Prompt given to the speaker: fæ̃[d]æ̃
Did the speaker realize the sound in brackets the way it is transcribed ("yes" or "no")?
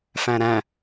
no